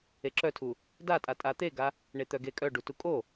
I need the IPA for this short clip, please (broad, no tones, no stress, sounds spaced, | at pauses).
e ǁ œ tʰ u | d a tʼ a tʼ a t̪ e ɡ a | ɳ e t̪ œ ɡ e kʼ œ ɖ u t u kʼ o